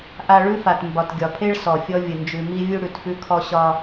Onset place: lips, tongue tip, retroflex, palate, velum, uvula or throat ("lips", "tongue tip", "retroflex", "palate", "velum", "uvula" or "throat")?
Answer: throat